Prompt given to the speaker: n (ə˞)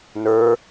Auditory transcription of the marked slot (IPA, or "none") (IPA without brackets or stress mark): ə˞